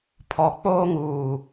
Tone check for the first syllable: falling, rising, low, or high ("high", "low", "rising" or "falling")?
low